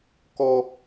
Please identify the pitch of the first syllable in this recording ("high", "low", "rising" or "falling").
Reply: high